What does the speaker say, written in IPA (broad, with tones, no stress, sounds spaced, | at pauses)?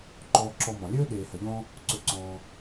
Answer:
ǃ ɔː˨ ǁ ɔ˨ m ɔ̃˩ lʲ ɵː˦ ɗ eː˨ h ə˨ ʎ ɔ̃˦ | ǀ ɵ˨ ǀ ɔ̃ː˨